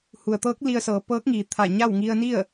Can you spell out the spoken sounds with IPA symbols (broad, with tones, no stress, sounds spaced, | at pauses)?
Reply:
h u˩ ə̯ t̪ ɤː˧˥ k̚ l i˧ ə̯ s ɤː˩˧ p ɤː˧˥ k̚ ŋ iː˩ t̪ʰ a˧˩ ɲ a˥˨ w ŋ i˧ ə̯ n i˥˨ ə̯